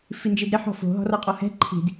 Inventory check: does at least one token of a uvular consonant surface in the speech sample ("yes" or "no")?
yes